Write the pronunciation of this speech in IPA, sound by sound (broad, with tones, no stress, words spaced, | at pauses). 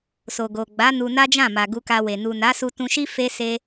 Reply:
so˨ɡo˨ɡ͡ba˨˦ nu˧na˦d͡ʒã˦˨ma˨ ɡu˧ka˧we˨ nu˨na˨˦ su˧tũ˧ʃi˦ fe˦se˦